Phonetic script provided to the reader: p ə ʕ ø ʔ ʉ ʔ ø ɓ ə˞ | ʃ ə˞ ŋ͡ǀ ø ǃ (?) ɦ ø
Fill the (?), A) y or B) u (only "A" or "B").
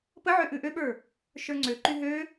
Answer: A